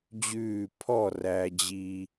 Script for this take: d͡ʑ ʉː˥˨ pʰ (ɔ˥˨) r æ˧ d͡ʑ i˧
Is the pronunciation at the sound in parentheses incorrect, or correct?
correct